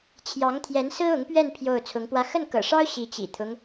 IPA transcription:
t͡ɕʰ j ɑ˧˥ ŋ t̪ʰ j ɛ˧˥ n s ɹ̩˥ ʊ˧˥ ŋ p ɥ ɛ˥˧ n pʰ j o˥˩ ʊ̯ t͡sʰ ʊ˧˥ ŋ p w ä˥ x ə˥˩ n k ɤ̰˨˩ ʂ ɑ˥ ʊ̯ ɕ i˧˥ t͡ɕ ḭ˨˩ t̪ʰ ʊ˦ ŋ

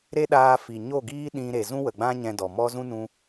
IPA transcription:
ɾ e˦ ɗ aː˧ f i˨ ɲ o˦˨ ɡ iː˦ ɗ ĩ˧ ɾ e˨ z ũ˦ w ə˨ ɡ͡b ã˦ ɲ ɛ̃˧ d ɔ˨ m ɔ˦ z ũ˦ n ũ˧

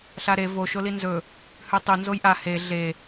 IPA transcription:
ɬ a ɾ e v o ʃ o l i n z ɵ | h ʉ tˤ u n z o j ʔ a h e ɮ e

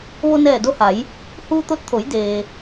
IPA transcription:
ʋ o˧ n ɛː˧˩ d o˧ h a˩˧ j | h uː˧ t̪ o˧ t̚ t̪ʰ o˩˧ j d eː˩

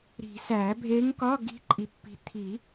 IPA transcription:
ɾ i̤˨˩˦ s æ˨˩˦ bʱ e˧˥ ŋ k ɒ˧˥˧ ɡ i̤˧˥ ǃʼ i˨ pː i̤˨ t̪ʰ i˨˩˦

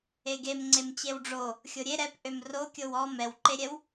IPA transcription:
e ɡ e m ŋ͡ǀ e m t͡ɕ e w ɖ͡ʐ o | xʲ o ɾʲ e ɾ ɛ p ʔ ø m r o kʲ o w ɔ m ɛ w ǃ e ɾʲ ɛ w

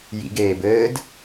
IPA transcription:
j ḭ ɡ eː b ɘː d

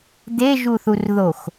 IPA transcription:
d̪ e ʒ u θ u r ð o x

